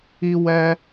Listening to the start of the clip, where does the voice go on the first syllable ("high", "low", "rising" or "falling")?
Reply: high